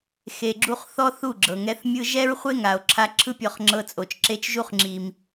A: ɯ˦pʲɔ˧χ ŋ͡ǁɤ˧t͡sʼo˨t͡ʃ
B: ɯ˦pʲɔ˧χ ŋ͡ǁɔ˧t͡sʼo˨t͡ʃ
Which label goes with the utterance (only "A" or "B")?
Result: A